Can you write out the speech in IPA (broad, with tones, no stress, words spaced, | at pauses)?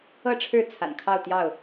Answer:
ɤ˥˨ʈ͡ʂʰɻ̩˥˨ t͡sʰa̰˨˩nkʰɑ˥˨ʊ̯ t̪jɑ˥˨ʊ̯